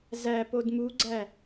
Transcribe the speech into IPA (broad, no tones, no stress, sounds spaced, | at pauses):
z æ p o d m u ɡ͡ǀ æ